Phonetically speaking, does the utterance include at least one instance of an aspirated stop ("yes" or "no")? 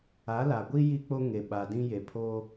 yes